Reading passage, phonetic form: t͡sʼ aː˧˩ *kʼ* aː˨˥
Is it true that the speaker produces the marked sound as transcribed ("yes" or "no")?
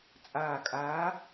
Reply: yes